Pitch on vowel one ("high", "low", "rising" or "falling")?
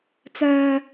low